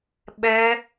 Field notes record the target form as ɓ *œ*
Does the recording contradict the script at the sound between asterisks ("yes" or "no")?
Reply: yes